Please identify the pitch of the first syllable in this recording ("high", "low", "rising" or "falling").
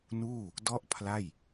falling